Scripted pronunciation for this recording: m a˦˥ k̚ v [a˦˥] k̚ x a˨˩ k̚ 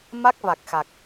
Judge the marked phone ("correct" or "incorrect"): incorrect